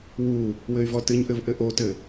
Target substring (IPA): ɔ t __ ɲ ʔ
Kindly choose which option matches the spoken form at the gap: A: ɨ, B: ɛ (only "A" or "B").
A